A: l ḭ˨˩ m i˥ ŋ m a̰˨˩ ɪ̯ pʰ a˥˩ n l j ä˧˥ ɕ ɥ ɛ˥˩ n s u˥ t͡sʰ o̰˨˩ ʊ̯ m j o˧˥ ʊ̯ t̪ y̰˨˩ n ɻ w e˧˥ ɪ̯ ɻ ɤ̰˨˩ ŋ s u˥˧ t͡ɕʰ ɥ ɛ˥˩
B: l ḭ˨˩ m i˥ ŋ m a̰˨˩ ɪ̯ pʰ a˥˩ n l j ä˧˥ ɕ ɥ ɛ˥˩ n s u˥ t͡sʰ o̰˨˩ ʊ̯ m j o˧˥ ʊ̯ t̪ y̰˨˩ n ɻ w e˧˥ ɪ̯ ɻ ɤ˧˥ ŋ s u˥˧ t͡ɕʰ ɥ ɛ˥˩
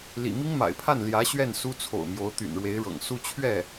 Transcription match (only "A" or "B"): A